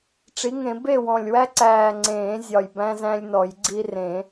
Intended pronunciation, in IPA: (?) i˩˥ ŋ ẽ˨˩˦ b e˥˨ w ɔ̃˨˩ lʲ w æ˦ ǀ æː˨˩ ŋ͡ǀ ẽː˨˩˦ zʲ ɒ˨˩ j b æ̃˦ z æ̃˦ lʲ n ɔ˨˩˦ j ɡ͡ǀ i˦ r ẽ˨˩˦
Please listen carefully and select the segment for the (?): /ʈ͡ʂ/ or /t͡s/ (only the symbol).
ʈ͡ʂ